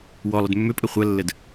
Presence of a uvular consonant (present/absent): present